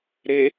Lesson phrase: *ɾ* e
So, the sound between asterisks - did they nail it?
yes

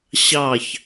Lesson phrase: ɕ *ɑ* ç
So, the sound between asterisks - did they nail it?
yes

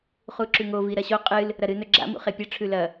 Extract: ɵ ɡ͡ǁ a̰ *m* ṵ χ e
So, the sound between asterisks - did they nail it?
yes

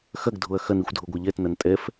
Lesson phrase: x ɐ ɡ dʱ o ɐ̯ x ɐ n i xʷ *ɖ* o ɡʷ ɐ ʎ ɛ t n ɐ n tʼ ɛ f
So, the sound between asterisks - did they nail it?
no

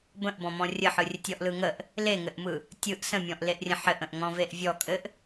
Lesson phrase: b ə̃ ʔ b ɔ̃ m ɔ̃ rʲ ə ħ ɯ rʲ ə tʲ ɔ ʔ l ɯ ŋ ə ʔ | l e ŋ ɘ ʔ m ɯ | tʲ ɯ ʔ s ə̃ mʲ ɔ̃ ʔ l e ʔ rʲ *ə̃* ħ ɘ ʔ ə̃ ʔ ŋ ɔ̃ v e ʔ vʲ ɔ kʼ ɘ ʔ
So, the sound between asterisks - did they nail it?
yes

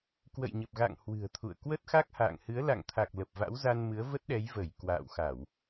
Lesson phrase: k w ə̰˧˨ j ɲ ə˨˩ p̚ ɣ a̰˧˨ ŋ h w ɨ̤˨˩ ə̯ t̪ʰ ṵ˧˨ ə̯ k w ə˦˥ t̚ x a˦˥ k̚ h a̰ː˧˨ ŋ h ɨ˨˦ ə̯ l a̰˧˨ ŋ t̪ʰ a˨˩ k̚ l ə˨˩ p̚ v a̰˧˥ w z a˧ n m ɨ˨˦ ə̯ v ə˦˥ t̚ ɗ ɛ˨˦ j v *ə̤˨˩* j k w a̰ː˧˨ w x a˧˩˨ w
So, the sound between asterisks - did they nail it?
no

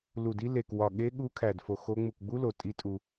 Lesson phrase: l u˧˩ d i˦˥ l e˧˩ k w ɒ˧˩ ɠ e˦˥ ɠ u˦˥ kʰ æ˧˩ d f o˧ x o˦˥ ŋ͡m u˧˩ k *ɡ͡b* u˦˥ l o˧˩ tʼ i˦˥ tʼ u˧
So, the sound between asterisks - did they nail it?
yes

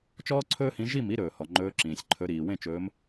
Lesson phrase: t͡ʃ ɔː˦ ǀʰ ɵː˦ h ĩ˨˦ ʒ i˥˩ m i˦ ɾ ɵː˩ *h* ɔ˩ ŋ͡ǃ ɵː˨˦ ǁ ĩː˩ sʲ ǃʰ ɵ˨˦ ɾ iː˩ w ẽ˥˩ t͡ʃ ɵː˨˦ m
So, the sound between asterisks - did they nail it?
yes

